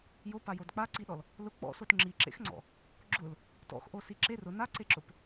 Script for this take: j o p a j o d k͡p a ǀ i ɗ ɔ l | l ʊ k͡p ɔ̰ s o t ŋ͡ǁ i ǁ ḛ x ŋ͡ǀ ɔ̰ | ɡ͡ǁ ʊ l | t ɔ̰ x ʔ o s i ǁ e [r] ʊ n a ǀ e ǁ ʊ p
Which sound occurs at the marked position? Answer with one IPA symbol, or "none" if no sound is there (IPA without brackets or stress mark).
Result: r